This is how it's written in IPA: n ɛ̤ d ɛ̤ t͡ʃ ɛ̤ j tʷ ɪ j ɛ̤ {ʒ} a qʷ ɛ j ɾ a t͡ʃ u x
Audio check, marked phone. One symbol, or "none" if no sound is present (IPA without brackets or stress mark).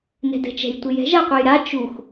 ʒ